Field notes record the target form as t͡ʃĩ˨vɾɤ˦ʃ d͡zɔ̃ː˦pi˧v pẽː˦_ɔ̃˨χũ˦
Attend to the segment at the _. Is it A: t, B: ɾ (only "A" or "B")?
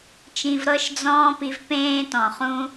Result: A